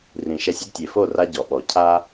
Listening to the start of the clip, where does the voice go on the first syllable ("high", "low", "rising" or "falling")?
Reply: low